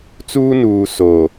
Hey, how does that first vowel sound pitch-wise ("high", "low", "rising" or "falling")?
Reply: high